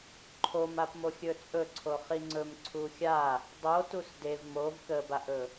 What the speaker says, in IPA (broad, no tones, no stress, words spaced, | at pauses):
ǃʰomapmoxʲɵ t͡sʼɵǀʰo χiŋ͡ǀɵm ǀʰuxʲa | dˤo tusdev mov kəbaʔɵ